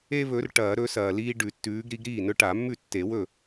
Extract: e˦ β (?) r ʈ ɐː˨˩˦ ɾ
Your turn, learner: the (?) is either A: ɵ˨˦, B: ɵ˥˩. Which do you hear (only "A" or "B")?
A